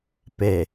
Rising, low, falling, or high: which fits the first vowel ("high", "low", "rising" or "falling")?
low